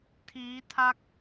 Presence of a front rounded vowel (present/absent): absent